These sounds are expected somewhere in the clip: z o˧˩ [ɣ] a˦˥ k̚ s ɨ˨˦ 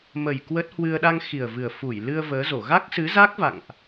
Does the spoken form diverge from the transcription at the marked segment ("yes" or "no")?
no